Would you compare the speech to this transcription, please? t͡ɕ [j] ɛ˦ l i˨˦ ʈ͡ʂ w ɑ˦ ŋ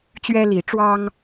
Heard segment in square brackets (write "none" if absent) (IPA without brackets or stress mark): ɥ